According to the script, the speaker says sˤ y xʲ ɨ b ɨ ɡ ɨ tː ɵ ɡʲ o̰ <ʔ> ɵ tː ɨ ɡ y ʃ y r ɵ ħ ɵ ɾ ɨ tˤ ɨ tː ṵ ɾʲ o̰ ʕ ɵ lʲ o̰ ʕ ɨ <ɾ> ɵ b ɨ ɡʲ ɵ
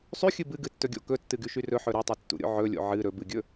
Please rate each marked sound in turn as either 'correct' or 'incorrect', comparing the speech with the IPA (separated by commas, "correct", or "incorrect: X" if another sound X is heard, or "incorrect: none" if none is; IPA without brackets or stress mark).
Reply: incorrect: k, correct